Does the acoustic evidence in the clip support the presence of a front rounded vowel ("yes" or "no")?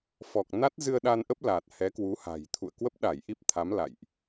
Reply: no